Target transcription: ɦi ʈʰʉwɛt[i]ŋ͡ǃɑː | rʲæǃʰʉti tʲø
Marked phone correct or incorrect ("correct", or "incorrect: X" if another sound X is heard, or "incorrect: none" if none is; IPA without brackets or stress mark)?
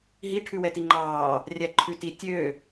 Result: correct